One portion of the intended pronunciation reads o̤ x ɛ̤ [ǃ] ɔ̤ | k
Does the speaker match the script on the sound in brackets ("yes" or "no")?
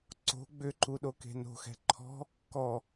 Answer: no